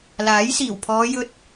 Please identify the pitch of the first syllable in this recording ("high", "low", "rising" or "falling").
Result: rising